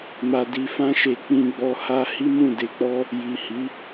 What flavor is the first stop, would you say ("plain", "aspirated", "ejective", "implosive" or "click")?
plain